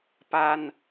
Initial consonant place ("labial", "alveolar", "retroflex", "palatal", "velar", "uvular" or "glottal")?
labial